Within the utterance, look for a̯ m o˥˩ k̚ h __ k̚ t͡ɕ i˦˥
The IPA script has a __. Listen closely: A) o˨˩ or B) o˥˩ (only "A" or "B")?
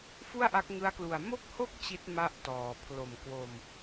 B